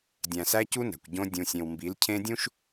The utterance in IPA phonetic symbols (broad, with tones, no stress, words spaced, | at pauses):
dʲæ̃˨sæ˦cu˦næ̤˨kʷ ɟõ˦ dʲũ˨sʲẽ˨wmbi˨˦l cʰẽ˦dʲũ˦ʃ